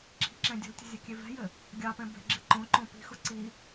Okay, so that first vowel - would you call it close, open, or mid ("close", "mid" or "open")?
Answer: close